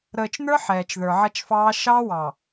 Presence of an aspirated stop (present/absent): absent